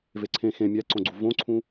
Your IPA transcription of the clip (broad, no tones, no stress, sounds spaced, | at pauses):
v e ǀʰ ẽ x ẽ mʲ æ ǀ õ ɡ͡ǀ u v õ ǀʰ ũ